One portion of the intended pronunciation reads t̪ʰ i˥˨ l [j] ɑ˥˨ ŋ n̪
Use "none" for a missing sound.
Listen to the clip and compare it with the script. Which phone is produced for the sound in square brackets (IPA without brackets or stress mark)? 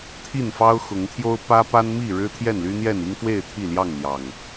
j